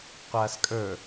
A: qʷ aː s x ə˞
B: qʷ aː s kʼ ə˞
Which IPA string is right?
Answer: B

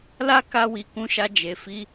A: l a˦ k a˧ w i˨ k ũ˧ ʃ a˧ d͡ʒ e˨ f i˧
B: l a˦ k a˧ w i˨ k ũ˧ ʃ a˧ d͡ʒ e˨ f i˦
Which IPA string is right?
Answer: A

